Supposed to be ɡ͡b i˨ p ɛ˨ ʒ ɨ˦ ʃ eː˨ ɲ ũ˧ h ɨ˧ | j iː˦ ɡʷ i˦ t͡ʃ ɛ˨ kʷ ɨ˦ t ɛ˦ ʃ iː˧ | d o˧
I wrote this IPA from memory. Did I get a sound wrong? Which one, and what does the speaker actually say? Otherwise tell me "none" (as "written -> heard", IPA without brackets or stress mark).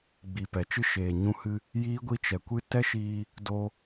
ʒ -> t͡ʃ